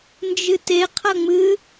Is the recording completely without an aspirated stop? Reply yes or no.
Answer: no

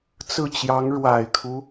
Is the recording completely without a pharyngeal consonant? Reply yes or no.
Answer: yes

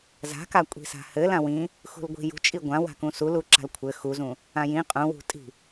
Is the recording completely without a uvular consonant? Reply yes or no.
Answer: no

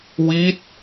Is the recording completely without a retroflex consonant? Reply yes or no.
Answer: yes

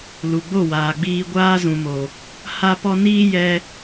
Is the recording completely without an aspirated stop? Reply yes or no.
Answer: yes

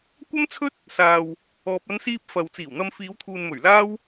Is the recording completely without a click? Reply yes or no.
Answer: yes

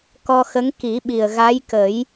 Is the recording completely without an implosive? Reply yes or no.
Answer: no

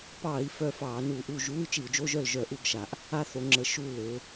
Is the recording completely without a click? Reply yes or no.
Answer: no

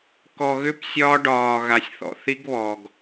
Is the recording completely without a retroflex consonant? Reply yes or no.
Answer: no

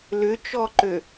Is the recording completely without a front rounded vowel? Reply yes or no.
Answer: no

